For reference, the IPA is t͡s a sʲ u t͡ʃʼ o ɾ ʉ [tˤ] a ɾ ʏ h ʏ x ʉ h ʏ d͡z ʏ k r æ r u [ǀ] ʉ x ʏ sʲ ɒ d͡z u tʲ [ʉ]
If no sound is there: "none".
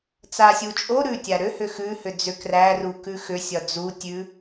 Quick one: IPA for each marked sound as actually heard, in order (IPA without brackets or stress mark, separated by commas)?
tʲ, k, ʉ